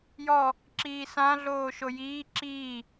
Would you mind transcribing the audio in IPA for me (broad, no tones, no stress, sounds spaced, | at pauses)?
j ɔ | ǁ iː s ã ɮ oː ʃ o j iː ǁ iː